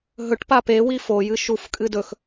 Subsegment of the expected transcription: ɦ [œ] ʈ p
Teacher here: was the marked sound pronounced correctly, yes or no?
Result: no